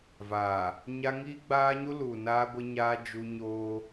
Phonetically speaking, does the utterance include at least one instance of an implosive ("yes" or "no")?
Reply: no